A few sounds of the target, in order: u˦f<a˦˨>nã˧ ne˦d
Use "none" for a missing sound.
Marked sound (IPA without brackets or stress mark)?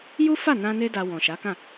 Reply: a˦˨